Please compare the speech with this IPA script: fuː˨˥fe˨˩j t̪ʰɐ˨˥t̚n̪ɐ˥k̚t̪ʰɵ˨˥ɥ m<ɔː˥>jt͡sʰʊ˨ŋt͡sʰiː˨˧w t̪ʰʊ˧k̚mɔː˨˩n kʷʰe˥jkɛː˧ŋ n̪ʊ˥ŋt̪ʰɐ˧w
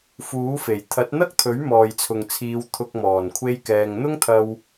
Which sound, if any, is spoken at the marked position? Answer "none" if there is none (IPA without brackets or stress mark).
ɔː˨